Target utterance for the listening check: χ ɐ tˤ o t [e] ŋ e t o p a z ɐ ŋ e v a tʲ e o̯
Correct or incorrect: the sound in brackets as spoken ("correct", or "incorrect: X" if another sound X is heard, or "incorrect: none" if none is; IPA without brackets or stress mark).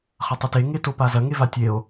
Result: correct